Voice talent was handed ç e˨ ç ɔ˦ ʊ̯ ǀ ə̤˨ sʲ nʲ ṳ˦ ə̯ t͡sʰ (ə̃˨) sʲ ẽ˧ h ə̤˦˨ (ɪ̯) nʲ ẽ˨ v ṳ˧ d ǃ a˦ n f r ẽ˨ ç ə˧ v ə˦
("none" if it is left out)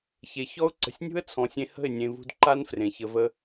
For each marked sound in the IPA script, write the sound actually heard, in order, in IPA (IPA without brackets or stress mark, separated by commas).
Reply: ɔ̃˨, ɪ̯